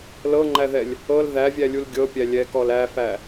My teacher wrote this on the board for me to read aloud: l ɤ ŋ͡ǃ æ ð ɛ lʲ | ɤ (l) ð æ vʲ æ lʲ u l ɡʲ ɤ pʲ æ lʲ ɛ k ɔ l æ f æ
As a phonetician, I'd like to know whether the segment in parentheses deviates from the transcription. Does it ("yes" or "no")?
no